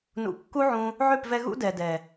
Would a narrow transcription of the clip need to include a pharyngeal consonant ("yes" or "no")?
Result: yes